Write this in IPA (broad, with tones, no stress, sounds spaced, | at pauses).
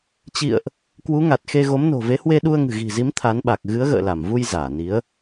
t͡ɕ ḭ˧˨ ə̯ ʔ | k w u˨˦ ŋ a˨˩ t̚ x e˧ ɣ o˨˦ m n o̤˨˩ v e˨˦ h w e˧ ɗ u˧ ə̯ ŋ ɨ̤˨˩ ɣ i̤˨˩ z i˨˦ m t̪ʰ a˨˦ n ɓ a˨˩ k̚ ɣ ɨ˨˦ ə̯ ɣ ə̰ː˧˨ l a˧˩ m v u˧ j z aː˧˩ n i˨˦ ə̯